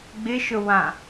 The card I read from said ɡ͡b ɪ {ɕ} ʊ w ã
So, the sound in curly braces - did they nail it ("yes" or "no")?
no